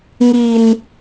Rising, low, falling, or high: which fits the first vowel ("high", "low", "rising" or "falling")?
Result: low